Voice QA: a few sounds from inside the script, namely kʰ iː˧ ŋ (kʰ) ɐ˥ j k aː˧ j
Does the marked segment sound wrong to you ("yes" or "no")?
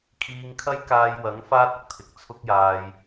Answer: no